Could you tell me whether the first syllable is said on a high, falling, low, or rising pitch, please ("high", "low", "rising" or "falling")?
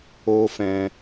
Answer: high